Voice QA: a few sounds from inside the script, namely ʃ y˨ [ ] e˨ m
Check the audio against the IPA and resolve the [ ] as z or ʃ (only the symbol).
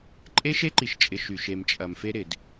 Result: ʃ